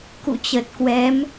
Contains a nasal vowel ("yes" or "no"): no